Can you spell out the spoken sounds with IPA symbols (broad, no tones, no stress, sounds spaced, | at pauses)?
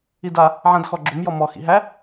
i d a | ʕ ã d x ɔ ɡ͡ǁ o m j ɔ m ɔ x ḭ ɦ æ